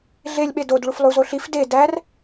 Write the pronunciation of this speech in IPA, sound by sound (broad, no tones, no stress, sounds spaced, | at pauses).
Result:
ɮ e lʲ ɓ e d o d ɭ u f lˠ u z o ɬ i f d e d æ r